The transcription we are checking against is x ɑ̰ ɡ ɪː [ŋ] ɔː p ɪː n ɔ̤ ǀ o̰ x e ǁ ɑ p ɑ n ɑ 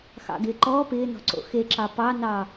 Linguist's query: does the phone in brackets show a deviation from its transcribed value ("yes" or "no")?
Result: yes